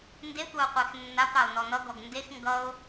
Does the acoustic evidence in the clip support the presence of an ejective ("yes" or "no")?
no